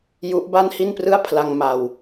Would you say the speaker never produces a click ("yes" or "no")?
yes